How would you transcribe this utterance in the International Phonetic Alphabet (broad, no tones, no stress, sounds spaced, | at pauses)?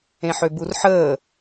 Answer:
ẽ ħ ø b u r ħ əː